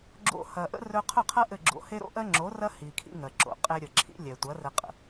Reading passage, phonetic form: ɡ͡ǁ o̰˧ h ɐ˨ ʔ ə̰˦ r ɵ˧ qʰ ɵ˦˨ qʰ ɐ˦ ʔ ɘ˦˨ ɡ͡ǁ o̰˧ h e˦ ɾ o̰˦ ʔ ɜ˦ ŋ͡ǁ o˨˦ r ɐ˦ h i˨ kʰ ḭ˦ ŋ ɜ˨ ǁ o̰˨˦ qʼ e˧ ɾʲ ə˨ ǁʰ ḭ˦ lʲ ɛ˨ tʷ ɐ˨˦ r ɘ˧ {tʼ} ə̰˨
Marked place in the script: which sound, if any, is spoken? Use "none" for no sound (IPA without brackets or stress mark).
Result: qʼ